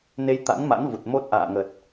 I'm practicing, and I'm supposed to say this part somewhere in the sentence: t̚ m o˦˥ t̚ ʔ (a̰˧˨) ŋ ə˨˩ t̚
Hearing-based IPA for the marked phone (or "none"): a̰ː˧˨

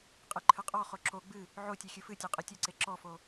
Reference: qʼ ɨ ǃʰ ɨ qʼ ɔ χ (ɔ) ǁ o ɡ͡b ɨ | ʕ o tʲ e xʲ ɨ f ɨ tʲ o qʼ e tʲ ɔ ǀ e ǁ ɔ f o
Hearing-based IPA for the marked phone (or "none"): o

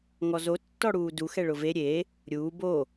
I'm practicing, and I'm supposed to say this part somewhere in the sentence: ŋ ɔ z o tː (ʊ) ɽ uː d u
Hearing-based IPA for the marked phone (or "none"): ɔ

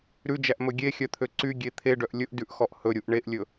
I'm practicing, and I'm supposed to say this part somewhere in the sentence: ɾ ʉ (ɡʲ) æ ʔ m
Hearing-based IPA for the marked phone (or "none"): d͡ʒ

